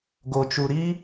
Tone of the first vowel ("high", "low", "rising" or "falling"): low